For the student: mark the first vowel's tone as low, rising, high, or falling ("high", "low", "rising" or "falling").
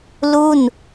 falling